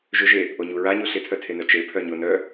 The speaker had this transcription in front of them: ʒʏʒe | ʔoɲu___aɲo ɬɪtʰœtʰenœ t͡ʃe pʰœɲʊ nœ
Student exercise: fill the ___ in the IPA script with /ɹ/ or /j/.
ɹ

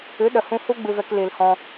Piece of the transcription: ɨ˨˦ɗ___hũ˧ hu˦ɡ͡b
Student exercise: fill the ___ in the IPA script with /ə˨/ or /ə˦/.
ə˨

